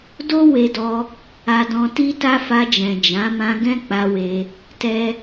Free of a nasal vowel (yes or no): no